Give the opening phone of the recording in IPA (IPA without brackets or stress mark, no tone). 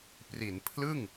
p